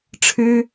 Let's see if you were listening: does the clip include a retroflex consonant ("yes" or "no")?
yes